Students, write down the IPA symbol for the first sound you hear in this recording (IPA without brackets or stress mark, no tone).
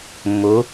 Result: mː